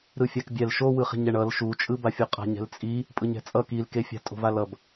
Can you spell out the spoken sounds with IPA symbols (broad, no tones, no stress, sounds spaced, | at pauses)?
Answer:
ɾ ɯ fʲ a k bʲ ɛ l ʃ o w ɯ χ i̤ ɲ ɛ ɳ ʌ l ʃ u t͡ʃʼ ɯ b a fʲ o qʼ a̤ ɲ ɛ̤ l t͡sʼ i | pʼ ɯ ɲ ɛ̤ t͡sʼ ʌ k i l k e fʲ a̤ tʼ o̤ v a l ʌ b